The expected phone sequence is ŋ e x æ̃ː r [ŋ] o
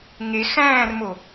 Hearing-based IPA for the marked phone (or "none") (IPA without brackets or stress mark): m